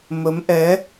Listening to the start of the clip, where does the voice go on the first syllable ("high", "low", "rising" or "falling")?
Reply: rising